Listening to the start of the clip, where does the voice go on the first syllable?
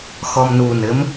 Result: low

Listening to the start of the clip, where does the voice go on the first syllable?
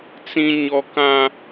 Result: high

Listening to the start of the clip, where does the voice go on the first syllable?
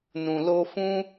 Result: low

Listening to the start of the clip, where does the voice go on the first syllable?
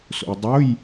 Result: low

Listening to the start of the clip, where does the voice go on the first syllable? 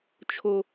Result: high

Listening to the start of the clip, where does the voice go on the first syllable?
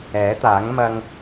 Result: rising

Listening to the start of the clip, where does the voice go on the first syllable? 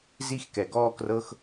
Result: high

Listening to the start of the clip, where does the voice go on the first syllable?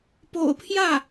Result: low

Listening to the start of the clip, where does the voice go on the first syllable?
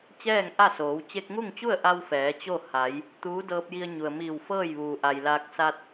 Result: falling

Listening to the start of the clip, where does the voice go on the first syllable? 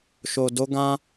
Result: low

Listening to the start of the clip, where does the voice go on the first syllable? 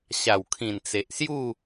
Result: low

